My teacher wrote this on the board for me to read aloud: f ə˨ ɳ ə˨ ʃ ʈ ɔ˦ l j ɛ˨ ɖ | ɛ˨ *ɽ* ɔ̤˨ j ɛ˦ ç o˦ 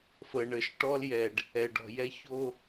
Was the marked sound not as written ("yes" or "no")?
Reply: yes